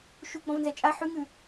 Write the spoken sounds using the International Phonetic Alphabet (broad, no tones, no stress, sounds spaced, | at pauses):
ʃ u ɡ͡b ɔ̃ v n z ɛ t͡ʃʼ a ħ ʉ ŋ ʉ